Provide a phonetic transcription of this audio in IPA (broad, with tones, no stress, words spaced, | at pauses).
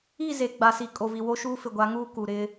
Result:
i˦˨ze˨ ɡ͡ba˨si˨kʼo˨vi˨ wo˦ʃuː˦ fɪ˨ɡʷa˨˦ŋuː˦ ku˨ ɾɪ˦